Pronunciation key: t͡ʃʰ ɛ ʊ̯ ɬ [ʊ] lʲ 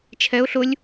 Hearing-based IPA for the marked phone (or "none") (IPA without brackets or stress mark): ʊ